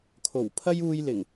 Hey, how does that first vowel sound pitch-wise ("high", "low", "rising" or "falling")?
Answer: low